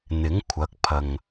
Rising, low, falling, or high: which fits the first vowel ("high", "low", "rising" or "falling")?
rising